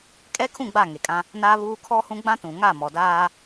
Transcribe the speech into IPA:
kʼ ɛ˦ kʰ ũ˦˨ ɡ͡b a˦˨ ŋ e˨ kʼ ã˦ | n aː˦ β uː˦ kʰ ɔ˦ h ũ˦ ɡ͡b ã˦ t ũ˨ ŋ a˦˨ m ɔ˨ d aː˦

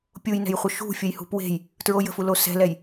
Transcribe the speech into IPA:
pʲ u j n ɛ̤ j χʷ ə ʃ ṳ fʲ ə j h ṳ p w e̤ j | t ɹ o j ə̤ f u l o s ɛ̤ l ɛ j

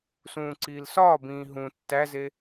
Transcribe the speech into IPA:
s ũː ǀ iː l s ɒː b ĩː ɦ ũ tː æ z e

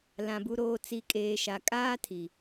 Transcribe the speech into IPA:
l ã˨ b u˨ ɾ oː˨ t͡s i˨ kʼ eː˨ ʃ a˨ kʼ aː˦ tʰ i˨

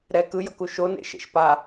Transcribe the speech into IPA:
ɾ ɛ k ɯ j ʌ k u ʃ o n ḛ ʃ ḛ ʃ p a

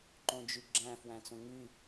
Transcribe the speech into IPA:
ǃ õ d͡ʒ y ɡ͡ǁ æ̃ f w æ̃ t͡s õ ŋ y

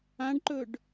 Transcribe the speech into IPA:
ã ɖ ǃ ɵ ɖ

